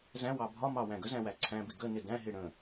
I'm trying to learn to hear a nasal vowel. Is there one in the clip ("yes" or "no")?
yes